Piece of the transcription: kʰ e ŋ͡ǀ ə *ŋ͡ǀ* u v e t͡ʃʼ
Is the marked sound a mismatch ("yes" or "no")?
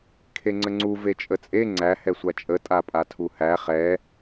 no